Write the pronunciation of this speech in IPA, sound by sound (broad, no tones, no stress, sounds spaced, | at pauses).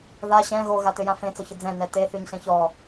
ð a ɕ ɛ̃ ɣ o ɣ a t ø j ã f ẽ t͡s ɔ ç ə d͡z ɛ̃ n ɛ t e θ y ɲ ɬ ẽ ç ɔ